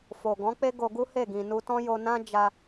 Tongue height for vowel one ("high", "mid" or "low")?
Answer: mid